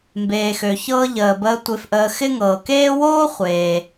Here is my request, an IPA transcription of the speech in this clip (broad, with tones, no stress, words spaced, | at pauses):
mbeː˨xø˨çɤː˦ ʎəː˩bəː˨ tʷe˨fʔəː˨ xɪ˦ŋɤː˩ keː˦woː˥ χʷeː˩